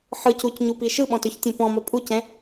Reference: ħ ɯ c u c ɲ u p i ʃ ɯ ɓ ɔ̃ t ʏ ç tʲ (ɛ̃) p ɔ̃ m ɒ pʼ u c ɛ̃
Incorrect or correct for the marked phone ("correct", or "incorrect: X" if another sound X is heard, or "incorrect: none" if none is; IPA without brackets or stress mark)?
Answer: correct